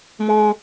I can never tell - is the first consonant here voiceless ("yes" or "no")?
no